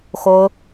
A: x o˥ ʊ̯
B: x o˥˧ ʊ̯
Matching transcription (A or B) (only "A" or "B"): A